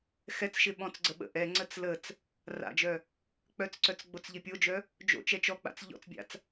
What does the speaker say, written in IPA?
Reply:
x ɛ t͡s ʃ ɪ ɓ ɔ̃ t͡s ɡ͡ǀ ə ɓ ə̰ ʔ ɛ ŋ͡ǀ ə t͡s l ə t͡s | r a̰ d͡ʒ œ | k͡p œ t͡s ǀ œ t͡s ɡ͡b o t͡s ʎ ɪ pʲ o d͡ʒ œ | d͡ʒ o̰ t͡ʃ ɛ t͡ʃ ɔ k͡p a̰ t͡s ʎ ɔ̰ t͡s bʲ a̰ t͡s

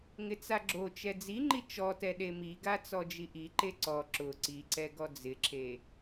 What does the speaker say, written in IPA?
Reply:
ŋ ɪ t͡s a ɡ͡ǁ o t͡ʃ ɛ d͡z i ŋ͡ǃ i t͡ʃ ɔ t ɛ ɗ e m i ɡ a t͡s ɔ d͡ʒ i ʔ i ǃ e ǀ ɔ ǁ ʊ ǀ i ǀ ɛ ɡ ɔ d͡z ɪ ǁʰ e

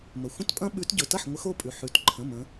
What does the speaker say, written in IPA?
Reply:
m ə˩ xʷ ə̃˦ t pʼ ɐ̃˦ ɓ ʉ˨˦ t ɟ ɵ˩˧˩ t ɐ˥˩ ħ ŋʷ ə˨˦ x o˥˩ pʼ ʉ˩ ħ ʉ˩˧˩ t ǃʰ ə̃˩˧˩ m ə̃˨˦

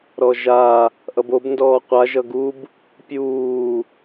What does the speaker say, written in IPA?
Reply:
ɾ ɔ ʒ a | ʔ ʌ b o b n d ɔː qʷ a ʒ ʌ ɡ u b | pʲ uː

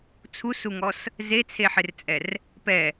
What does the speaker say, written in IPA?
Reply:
t͡sʰ u s u ŋ ɔ s | z e t͡sʰ e ħ ɪ r t͡sʼ ɛ r | p ɛ

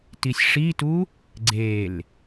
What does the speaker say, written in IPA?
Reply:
t i sʲ ʂ i t u | ɡ͡ǀ e l

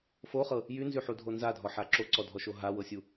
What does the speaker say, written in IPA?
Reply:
f o χ ɤ | j y n z y ħ u dʱ o n z a dʱ ɔ ħ a ǁ o ǀ ɔ dʱ ɔ ʃ o ɦ a w ɤ sʲ u

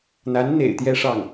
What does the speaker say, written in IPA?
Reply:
n̪ a˧˥ n n̪ ḛ˨˩ ɪ̯ t̪ j ɛ˥˧ ʂ ɑ˥˩ ŋ

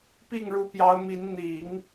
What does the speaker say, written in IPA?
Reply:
p i˥˩ ŋ ɻ u˧˥ p j ɑ˧˥ ʊ̯ m i˧˥ n n̪ i˨˩˦ ŋ

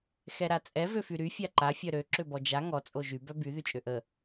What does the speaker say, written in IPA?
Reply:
x ɛ ɾ a t͡sʼ ɛ v ø f y ɾ y fʲ a ǃ a fʲ œ ɾ ø ǁ ø b ɔ d͡ʒ a ŋ ɔ t͡sʼ o ʒ y b œ b y ð y t͡ʃʼ ø ʔ ə

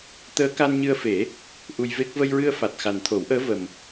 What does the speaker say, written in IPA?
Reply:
t̪ əː˧˥ k a˧ n ɲ ɨ˧ ə̯ f e˨˩˦ | ʔ u˧ j v e˦˥ k̚ v ə˧ j ɹ ɨ˧ ə̯ f a˨˩ t̚ x a˨˩ n t̪ʰ o˨˩˦ w ʔ əː˧˥ v ə˨˩ m

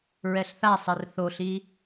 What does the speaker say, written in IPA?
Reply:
ɹ ɛ ɬ θ a sˤ ɛ r θ o ɬ i

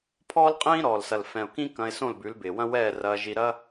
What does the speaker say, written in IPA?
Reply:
pʰ ɔː˦ l qʼ ĩː˦ ɾ ɔː˨ l s ɐ˨ l f ɛ̃˨ ʊ̯ k ĩ˦ k ɐ̃˧ ɪ̯ s õ˦˨ l b ʉ˨˦ l b ɪː˨ w ɐ̃˦ w ɛː˦˨ r ɐː˧ ʒ i˧ ɾ ɐ˦

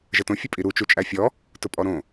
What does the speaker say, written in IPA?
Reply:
ʒ ə t õ fʲ ə pʼ i ɾ u t͡ʃ u t͡ʃʼ æ fʲ ɔ | t ʊ pʼ ɔ ɾ õ

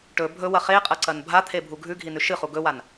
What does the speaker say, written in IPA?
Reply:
ʈ ɵ bʱ ɵ w ɐ χ e qʼ ɐ ǀ ɐ n bʱ a t̪ʰ e bʱ u ɡʱ ʉ ɡʱ i n ʉ ʃ ɨ χ u ɡ ɵ w a n

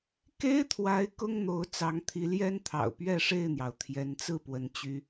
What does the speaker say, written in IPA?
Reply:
k e˦ ɪ̯ t̪ʰ w a˨˦ ɪ̯ k ʊ˦ ŋ n̪ o˨˦ ʊ̯ t͡s ɑ˨˦ ŋ t̪ʰ i˨˦ l j ɛ˦ n t̪ʰ ɑ̰˨˩ ʊ̯ p ɥ ɛ˥˨ ʂ e˥˨ ɪ̯ n̪ j ɑ˩ ʊ̯ t̪ʰ j ɛ˨˦ n t͡s ɹ̩˥˨ p w ə˨˦ n t͡ɕ y˦

